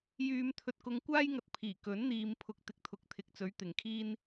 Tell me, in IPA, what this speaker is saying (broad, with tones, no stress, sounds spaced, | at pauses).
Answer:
j yː˧ m t̪ʰ ɵ˧ t̚ k ʊ˧ ŋ kʷ aː˥ j ŋ ɐ˧ t̚ pʰ iː˨˩ k ɵ˨˥ n n̪ iː˨ m pʰ ʊ˨ k̚ t̪ ɪ˧ k̚ t̪ʰ ʊ˨ k̚ t̪ʰ ɪ˨ k̚ t͡s ɵ˨˥ ɥ t̪ ɪ˨˩ ŋ kʰ iː˥ n